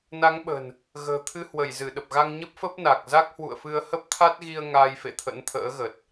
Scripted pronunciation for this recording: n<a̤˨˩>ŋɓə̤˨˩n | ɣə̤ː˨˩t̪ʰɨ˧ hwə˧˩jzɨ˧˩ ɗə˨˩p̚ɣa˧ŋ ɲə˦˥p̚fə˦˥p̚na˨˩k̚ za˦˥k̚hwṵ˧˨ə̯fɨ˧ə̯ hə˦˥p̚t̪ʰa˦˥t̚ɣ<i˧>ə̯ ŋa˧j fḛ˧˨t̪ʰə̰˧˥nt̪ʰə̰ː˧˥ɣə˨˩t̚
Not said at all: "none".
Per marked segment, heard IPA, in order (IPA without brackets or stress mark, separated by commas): a˨˦, i˧